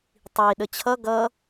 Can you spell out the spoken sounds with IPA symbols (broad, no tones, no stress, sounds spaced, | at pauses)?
tˤ i ɗ ə t͡ɕʰ ʌ ɡ ʌ